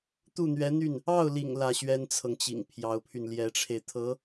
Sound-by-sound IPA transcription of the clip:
t̪u˥˩n̪ɥɛ˧˥n̪y˥˩n | ɑ˥˩ʊ̯lḭ˨˩ŋ lä˥˩ɕɥɛ˥nt͡sʰɤ˨ŋt͡ɕḭ˨˩ŋ pʰjɑ˧˥ʊ̯pʰy˧nljɛ˧˥ʈ͡ʂʰe˧ɪ̯ t̪ʰɤ˧˥

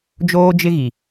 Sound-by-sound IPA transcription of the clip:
d͡ʒoː˦d͡ʒɪ˦ɣi˨

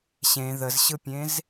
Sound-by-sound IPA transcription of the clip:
ɕẽ ðəzɕɯpʲẽz

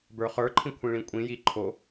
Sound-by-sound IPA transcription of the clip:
bə˞χə˞ǃʰĩ kʷʰĩɭĩkʷʼĩji ǃʰo

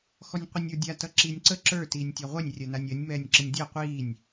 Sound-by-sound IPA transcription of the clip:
xɔnʲqʷʌnʲə˞dʲa tʌǁiːnʲǀə ǁə˞ tiːnʲtʲaʁʷɛnʲ rʲɜnanʲɜnʲ mɛːnʲǁənʲdʲɜ qʷiːnʲ

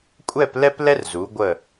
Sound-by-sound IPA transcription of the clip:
kʷʼɛ˥˧plɛ˥p lɛ˥rzu˩˧ɡʷə˧˩

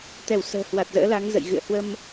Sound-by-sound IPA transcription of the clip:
t̪ɛ˧˩wsə̤ː˨˩hwa˨˩t̚ zə̰ː˧˥la˨˦ŋzə̰˧˨j ɣɨ̰˧˨ə̯ hwə˧m

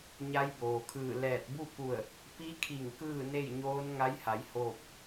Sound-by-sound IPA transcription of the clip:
ɲa˧˥jboː˩kʰɯː˧˩ lɛː˧˩t̚ bu˥˨ku˧˩ə̯ | pi˧˥kʰi˧˩ŋ kɯː˥˨ne˥˨jɲoː˧˥n ŋa˧˥jha˩˧j hoː˥˨p̚

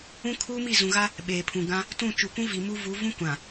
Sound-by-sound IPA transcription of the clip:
ũ˦kʰuː˦mi˦˨ zũ˨ɣa˦ | ɓeː˨pʰũ˨ɡã˦ | tũ˦˨ t͡ʃu˨kʷũ˦vi˨ mu˦vu˨˦ vũ˦kʷã˨

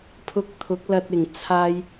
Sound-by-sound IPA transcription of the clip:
pʰʊ˧k̚t̪ʰʊ˨˥k̚lɐ˧t̚ ɪ˨˩ŋt͡sʰaː˧j

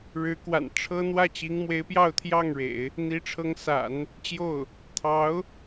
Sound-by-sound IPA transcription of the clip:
ɻɻ̩˧˥kwa̰˨˩n ʈ͡ʂʰɤ˥ n̪wä˥˩t͡ɕi˧˥ŋmwe˧˥ɪ̯ pjɑ˥˧ʊ̯t̪ʰjɑ˥˩ŋɻḛ˨˩˦ɪ̯ | n̪i˧˥ʈ͡ʂʰɤ˧˥ŋ sa̰˨˩˦n | t͡ɕjo˥˩ʊ̯ | t̪ʰɑ˧˥ʊ̯

